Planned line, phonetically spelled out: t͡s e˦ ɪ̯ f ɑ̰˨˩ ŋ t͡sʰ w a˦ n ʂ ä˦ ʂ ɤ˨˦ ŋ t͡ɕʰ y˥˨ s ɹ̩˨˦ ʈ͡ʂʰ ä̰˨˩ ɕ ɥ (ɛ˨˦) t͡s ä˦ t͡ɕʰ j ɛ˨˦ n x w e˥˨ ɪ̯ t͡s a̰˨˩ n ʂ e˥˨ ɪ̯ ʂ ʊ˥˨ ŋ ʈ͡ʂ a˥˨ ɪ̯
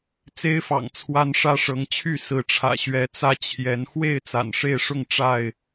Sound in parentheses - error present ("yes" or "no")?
no